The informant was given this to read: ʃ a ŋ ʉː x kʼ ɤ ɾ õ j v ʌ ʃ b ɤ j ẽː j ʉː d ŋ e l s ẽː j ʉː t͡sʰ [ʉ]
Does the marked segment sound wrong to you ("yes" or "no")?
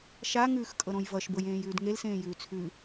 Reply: no